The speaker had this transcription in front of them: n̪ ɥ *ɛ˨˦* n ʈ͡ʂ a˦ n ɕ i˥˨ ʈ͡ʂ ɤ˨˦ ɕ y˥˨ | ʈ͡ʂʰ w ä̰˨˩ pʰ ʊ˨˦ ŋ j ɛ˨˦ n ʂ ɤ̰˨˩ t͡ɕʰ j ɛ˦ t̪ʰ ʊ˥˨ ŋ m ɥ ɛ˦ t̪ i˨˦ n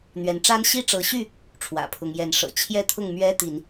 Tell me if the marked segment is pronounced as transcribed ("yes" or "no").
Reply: yes